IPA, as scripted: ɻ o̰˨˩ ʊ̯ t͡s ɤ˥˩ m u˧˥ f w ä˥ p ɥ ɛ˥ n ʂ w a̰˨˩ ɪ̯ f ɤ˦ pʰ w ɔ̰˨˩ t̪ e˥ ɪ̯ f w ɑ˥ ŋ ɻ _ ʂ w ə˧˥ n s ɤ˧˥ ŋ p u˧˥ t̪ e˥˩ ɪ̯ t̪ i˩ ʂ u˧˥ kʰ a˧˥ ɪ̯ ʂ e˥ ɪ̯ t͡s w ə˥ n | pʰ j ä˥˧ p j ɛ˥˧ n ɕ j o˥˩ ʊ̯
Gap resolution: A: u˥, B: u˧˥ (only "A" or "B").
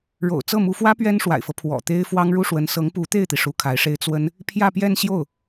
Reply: A